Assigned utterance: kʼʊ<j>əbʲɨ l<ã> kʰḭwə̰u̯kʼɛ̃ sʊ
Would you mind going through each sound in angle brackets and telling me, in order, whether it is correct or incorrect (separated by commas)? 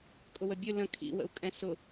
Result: incorrect, incorrect